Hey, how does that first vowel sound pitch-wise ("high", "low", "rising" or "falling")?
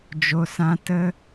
low